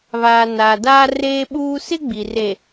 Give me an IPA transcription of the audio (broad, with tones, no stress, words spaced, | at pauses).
βaː˨ naː˨daː˦ reː˦ɓuː˦ sɪ˦ ɡ͡bi˨re˨